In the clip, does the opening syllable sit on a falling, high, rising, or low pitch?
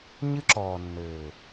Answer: high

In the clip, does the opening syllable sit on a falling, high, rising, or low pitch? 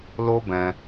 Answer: high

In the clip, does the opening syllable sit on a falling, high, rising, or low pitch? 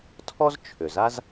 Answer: high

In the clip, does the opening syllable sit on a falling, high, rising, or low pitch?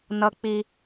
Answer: high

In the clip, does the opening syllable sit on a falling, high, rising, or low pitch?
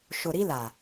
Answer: low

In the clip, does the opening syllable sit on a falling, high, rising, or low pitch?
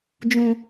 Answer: low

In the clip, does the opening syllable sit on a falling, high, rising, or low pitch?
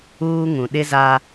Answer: high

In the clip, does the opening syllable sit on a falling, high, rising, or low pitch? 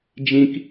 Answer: high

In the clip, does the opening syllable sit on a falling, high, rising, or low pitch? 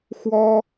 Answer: high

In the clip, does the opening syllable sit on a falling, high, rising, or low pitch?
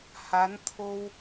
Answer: rising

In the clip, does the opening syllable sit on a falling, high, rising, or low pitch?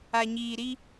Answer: low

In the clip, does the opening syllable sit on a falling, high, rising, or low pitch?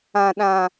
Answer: low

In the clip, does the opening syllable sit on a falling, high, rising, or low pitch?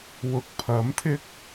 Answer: rising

